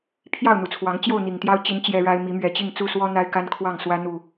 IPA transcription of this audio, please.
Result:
pʰ j ɑ˥˨ ʊ̯ n̪ u˨˩ t͡sʰ w ɑ˨˦ ŋ t͡ɕ j o˥˨ ʊ̯ n̪ i˨˩ ŋ t̪ j ɑ˦ ʊ̯ t͡ɕ i˨˦ n t͡ɕ j ɛ˦ ɻ a˦ ɪ̯ m i˨˦ m ɥ ɛ˨˩ t͡ɕ i˥˨ ŋ t͡s u˥˨ s w ɔ˦ n̪ a˦ ɪ̯ k a˦ n kʰ w ɑ˥˨ ŋ s w ä˦ n̪ u˨˩

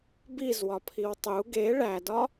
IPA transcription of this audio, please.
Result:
b i z w ɒ pʰ i w tˤ u ɡ e ɭ æ d ɒ

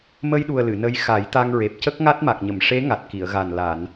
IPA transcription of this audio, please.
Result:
m ə˧ j ɗ u˨˩ ə̯ l ɨ˨˩˨ n ə˧˥ j x a˨˩˦ j t̪ a˧ ŋ ɹ e˨˩ p̚ c ə˦˥ k̚ ŋ a˦˥ t̚ m a˨˩ k̚ ɲ ə˨˩˨ m ʂ e˧˥ ŋ a˨˩ t̚ k i˨˩˨ ə̯ ɣ a˨˩ n l a˨˩˨ n

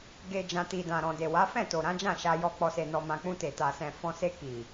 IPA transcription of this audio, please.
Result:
ɡ e˨ d͡ʒ ã˨ t i˨ d ã˨ ɾ ɔ̃˨ d e˨ w a˨˦ f ɛ̃˦˨ t o˨ ɾ ã˨˦ d͡ʒ ã˦˨ ʃ a˧ j ɔ˧ k͡p ɔ˨ s e˨ n ɔ˨ m ã˨ k͡p ũ˧ t e˨ t a˨ s ɛ̃˨ f ɔ̃˧ s e˧ k i˨

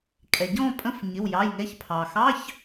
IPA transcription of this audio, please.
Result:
kʼ ɛ˩ ɟ ɔ̃˦˨ pʼ ə̃˧˥˧ f ɲ ɪ˩˧˩ w j ɑ˩˧˩ j ŋ ɛ˨˦ ç pʰ ɑ˩ x ɑ˧˥˧ ç

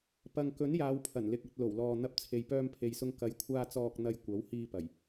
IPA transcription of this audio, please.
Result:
p ɐ˨ ŋ k ɵ˨˥ n j aː˨˧ w pʰ ɐ˨˩ n l ɪ˨ k̚ ɐ˨ t̚ l o˨˩ w l ɔː˨ n̪ ɐ˧ p̚ t͡sʰ e˨ j p œː˧ m pʰ e˨ j s ʊ˧ ŋ k ɐ˨˥ j kʷʰ aː˧ t͡s ɔː˧ k̚ n̪ ɐ˧ j kʷ ɐ˨˥ w h iː˧ p ɐ˨˩ j

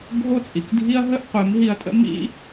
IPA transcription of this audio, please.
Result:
bʱ o˦ t͡sʼ i˨ k dʱ i˦ ɐ̯ ɦ ə˦ ʔ qʷ e˨˦ m ɦ i˧ ɐ̯ tʼ ə̰˦ m ḭ˦

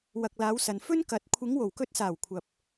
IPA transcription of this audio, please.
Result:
w ɐ˨ k̚ l aː˨˧ w s ɐ˨ n f ɵ˥ n k ɐ˨ t̚ kʷʰ ɪ˨˧ ŋ w o˨˩ w k ɵ˧ t̚ s aː˨˩ w kʷʰ ɐ˨ p̚

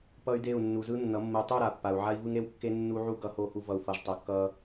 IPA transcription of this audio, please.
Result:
p ʌ˦ y̯ d e˦˨ u̯ nː u˨ z ɯ˦ nː ʌ˨˦ mː ɯ˨ tˤ u˦˨ ɾ a˨ pː a˨ u̯ ʕ a˦ i̯ v ɯ˦ ŋ ɾ e˦ w kː e˦ nː u˦ ʕ u˦ ɡ ʌ˨˦ h o˨ h u˨ v ʌ˨ u̯ f ʌ˨ ʒ tˤ o˨ kː ʌ˦

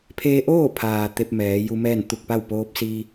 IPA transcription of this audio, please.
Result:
pʰ eː˧ ʔ oː˥˨ pʰ aː˩ t̪ e˧ p̚ m ɛː˩˧ j u˧ m ɛː˥˨ n t̪ u˧˩ k̚ p a˥˨ w p oː˧˥ p̚ s iː˧

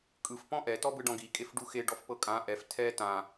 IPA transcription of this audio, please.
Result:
kʼ ɯ f p ɔ̃ ʔ ɛ t ɔ b ɯ ɖ ɔ̃ ɡ i kʼ e f ɖ u x e ɖ ɔ f p ɤ kʼ ã ʔ ɛ f tʰ ɛ t ã

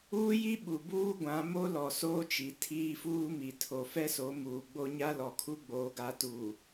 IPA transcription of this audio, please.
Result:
uː˦ j i˦ ɓ u˨ b uː˦ ɡʷ ã˨˦ m o˦ l ɔ˨ s oː˦ t͡ʃ i˨ tʰ iː˦ f uː˦ m i˨ tʰ o˨ f ɛ˦ s o˨˦ m uː˨ ɡ͡b o˦ ɲ a˦ l ɔ˨ kʰ u˦ ɡ͡b oː˦ ɡ a˦ t uː˨

